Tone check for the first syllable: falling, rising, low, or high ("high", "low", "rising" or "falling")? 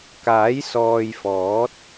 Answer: rising